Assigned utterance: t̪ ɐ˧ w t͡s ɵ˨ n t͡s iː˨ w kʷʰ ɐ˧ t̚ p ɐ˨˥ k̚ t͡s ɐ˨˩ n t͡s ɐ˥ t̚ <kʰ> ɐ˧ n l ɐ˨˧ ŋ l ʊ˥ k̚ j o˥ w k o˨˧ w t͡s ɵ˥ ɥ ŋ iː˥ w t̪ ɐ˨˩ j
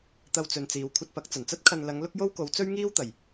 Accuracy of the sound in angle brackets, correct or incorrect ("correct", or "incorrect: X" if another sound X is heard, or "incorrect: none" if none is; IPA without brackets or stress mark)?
correct